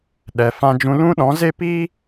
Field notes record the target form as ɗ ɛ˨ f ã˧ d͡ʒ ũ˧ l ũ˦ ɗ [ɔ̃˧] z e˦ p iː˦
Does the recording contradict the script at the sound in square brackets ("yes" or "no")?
yes